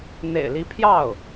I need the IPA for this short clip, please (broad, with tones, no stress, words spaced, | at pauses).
n̪ḛ˨˩ɪ̯li˧˥pʰjɑ˥˩ʊ̯